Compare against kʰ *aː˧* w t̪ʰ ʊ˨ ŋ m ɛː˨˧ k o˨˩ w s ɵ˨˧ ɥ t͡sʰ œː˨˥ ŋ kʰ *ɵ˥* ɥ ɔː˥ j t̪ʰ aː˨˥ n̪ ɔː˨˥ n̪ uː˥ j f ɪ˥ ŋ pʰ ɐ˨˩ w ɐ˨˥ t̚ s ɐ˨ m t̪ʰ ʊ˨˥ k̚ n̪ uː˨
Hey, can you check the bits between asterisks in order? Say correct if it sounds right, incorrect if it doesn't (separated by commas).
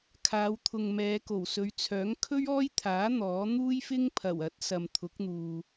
incorrect, correct